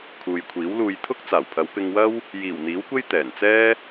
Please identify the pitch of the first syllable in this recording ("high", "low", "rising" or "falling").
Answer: low